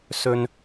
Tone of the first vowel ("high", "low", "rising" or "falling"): low